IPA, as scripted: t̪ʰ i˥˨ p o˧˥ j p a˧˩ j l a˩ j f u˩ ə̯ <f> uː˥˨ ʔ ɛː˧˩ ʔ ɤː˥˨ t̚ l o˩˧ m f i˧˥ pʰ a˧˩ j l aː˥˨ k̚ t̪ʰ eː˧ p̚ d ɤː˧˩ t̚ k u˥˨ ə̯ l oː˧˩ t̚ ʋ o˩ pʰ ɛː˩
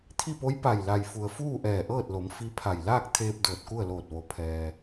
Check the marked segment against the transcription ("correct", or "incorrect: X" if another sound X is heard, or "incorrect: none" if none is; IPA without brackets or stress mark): correct